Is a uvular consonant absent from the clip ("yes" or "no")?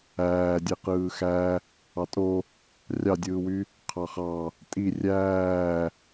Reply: no